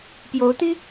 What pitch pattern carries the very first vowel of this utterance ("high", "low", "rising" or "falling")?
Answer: rising